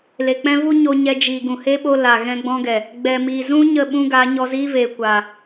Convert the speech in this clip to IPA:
l e˨ k͡p ɛ̃˦ v u˦ ɲ o˧ ɲ ɛ˧ d͡ʒ iː˨ ɡ ũ˨ h e˦ ɓ o˧ l a˨ ɣ ɛ̃˧ ɡ͡b ɔ̃˧ ɡ ɛ˨ | ɡ͡b ɛ˨ m i˨ z ũ˦ ɲ ə˦˨ ɓ ũ˦ ɡ a˨˦ ɲ ɔ˧ z iː˦ v eː˨ kʷ aː˨

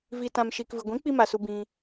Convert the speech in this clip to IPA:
v i˨ t ã˨ m ʃ iː˨ k v ɨ˨ ɡʷ ĩ˨˦ k͡p i˦ m a˨ s u˧ b ĩ˧

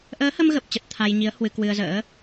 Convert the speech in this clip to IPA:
ʔ əː˨˦ h ə˧ m ɣ ə˨˩ p̚ t͡ɕ ə˨˩ t̚ t̪ʰ a˧ j ɲ i˨˦ ə̯ h w ɨ˧ k w ɨ˧ ə̯ z ə̰ː˧˥

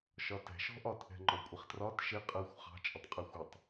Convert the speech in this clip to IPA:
ʃ ɒ t ɛ̤ ʃ ɔ̤ ʔ ɒ t ʔ ɛ̤ ŋ͡ǃ ɔ kʷʼ ɪ χ t r ɒ t ʃ ɪ qʼ ɜ xʷ χ ɑ̤ t͡ʃʼ ə tˤ qʼ æ xʷ ʊ tˤ

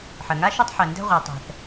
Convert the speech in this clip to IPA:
ħ ɜ˨ ŋ a˦ ʃ u˦ tˤ ħ ɜ˨ n d ɛ̤˧ ʁʷ ɜ˨ tˤ ɛ̤˧ θ

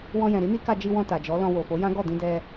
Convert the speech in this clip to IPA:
w ɔ̃˧ j ɛ̃˨ ɾ i˨˦ n i˦ k a˧ d͡ʒ i˧ w ɔ̃˧ t a˨ d͡ʒ ɔ˨˦ l ɔ̃˧ w o˨ f o˨˦ j ã˦ ɡ ɔ˦˨ d ĩ˧ d ɛ˧

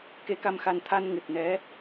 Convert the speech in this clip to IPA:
k e˧˥ k a˧ m x a˧ n t̪ʰ a˧ n ŋ ɨ˨˩ t̚ n ɛ˧˥

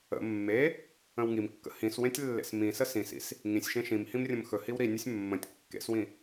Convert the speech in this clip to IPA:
ə̰ mː e | ə̃ w ŋ i m kː ə̰ h ĩ s w ẽ tʲ lː ḛ s m ĩ s ə s ĩ s ḭ s | ŋ ĩ sʲ ʃ ẽ ʃ ĩ m h ĩ m rʲ ə̃ m x ɵ h i w ɾ i nʲ ɵ sʲ mː ə̃ tʲ kː ḛ s w ĩ

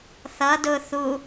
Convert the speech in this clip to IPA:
θ ʌ d ʊ θ u

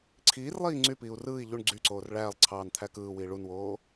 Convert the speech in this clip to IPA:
ǀʰ iː r lˠ iː ŋ͡ǀ y p iː u̯ r ɯː i̯ ʎ u ɳ ɡ͡ǀ y ǀ oː r ɭ æː lˠ ǀʰ ɑː n t̪ʰ æ k ɯː w iː ɭ u n w oː

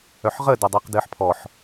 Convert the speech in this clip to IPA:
œ ħ ʁ ə d ə dˤ ɘː q d ɘː ħ pʰ ɔ ħ

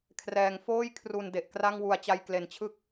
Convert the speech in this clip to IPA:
kʰ r ɛː˩˦ ŋ f oː˥˩ j kʰ r u˨˩ n d e˨˩ ʔ k r a˥˩ ŋ w u˨˩ a̯ t͡ɕ a˧ j k l e˩˦ n t͡ɕʰ ɯ˥˩ k̚

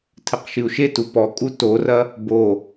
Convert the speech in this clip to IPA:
tʰ ɘ q ʃ ɨ u̯ ʃ e t u p ɔ kʼ u t o r ɐ | b o

